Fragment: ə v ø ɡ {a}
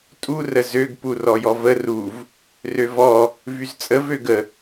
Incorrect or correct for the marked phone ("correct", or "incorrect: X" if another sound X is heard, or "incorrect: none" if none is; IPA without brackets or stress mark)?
incorrect: ə